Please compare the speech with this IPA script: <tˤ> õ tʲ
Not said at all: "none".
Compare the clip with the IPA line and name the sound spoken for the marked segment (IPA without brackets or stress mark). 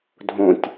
dʱ